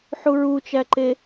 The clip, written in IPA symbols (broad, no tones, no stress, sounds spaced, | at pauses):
ħ u ɹ u t͡ʃ æ ǃ e